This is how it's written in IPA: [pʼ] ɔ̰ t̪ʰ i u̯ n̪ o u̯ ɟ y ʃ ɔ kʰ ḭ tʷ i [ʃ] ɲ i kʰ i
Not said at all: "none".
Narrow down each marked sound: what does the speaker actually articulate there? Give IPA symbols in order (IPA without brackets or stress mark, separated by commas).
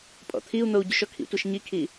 pʼ, ʃ